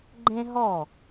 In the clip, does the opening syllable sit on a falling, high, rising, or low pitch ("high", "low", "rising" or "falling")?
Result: high